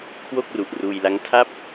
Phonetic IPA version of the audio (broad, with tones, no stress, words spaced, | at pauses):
kʰwo˥˩k̚ru˨˩ʔruː˧j la˦˥ŋtʰa˥˩p̚